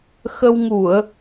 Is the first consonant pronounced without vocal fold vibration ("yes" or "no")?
yes